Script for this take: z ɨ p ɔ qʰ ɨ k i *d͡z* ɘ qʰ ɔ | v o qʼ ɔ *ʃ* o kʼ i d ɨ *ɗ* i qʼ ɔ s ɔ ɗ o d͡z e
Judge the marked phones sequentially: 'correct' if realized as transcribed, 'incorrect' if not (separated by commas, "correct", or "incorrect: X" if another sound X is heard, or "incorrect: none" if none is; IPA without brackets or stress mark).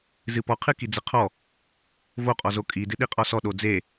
correct, incorrect: z, correct